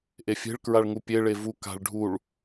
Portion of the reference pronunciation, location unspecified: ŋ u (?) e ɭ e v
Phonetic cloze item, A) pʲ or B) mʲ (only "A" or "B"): A